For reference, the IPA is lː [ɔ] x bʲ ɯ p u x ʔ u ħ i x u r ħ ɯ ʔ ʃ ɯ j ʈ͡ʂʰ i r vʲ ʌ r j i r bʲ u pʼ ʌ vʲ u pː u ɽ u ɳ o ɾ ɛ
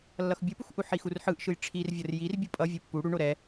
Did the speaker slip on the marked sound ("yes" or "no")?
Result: yes